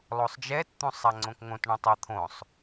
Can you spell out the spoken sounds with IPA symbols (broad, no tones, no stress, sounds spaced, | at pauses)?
lˠ o sˤ d͡ʒ ɛ t t̪ ũ sˤ a ŋ͡ǀ õ k ŋ õ t ɳ õ tˤ ɤ t̪ʰ õ sˤ